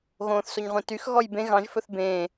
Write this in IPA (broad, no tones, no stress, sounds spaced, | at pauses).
ɣ õː θ s o ɲ ʁʷ ẽ t y x ɣ ɔ j b ẽ ɣ ɑ̃ ʒ f ɵ θ b ẽː